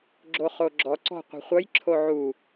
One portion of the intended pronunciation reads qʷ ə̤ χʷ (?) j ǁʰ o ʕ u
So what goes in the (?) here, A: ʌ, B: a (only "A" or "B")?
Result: A